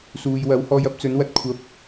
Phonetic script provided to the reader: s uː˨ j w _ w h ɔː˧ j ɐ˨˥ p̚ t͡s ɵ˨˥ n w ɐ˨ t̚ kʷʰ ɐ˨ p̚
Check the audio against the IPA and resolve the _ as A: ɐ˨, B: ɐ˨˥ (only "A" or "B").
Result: B